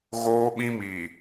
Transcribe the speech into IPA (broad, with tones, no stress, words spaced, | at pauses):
ɣoː˦ɓĩ˦mi˨